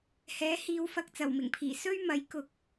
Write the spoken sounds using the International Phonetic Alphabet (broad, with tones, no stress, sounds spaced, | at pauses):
h ɛː˨˥ h iː˨˧ w f ɐ˧ k̚ t͡s ɐ˨˩ w m ɪ˨˩ ŋ pʰ iː˨˩ s ɵ˥ ɥ m ɐ˨˥ j k ʊ˧ k̚